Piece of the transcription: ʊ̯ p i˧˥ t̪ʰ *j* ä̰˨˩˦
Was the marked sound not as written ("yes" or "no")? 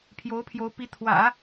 yes